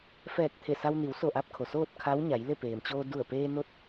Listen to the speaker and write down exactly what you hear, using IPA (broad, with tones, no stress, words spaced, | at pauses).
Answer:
fɛː˧˩k̚ t̪ʰe˧˩sa˧wni˩˧w so˧˩ʔa˧p̚kʰo˩ soː˥˨t̚kʰa˧˥wɲa˩˧jle˥˨ peː˩mt͡ɕoː˧ du˧˩ə̯peː˧no˧˥t̚